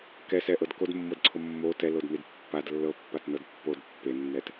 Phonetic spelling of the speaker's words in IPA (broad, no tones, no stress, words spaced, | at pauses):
kɛsɛʔɤd kodmːɤdǀʰo mːo tɛlodnid pːad lːɤpːatnɤd pːod pːenːɛt